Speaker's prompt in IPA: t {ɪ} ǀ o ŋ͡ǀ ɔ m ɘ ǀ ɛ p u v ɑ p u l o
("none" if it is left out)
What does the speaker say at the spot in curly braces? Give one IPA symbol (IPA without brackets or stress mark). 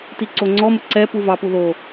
i